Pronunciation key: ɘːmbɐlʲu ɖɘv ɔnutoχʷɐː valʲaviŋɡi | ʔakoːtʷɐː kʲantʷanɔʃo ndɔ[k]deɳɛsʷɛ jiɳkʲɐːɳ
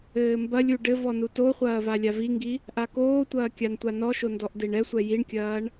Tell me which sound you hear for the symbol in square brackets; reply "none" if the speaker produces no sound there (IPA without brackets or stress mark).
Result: ʔ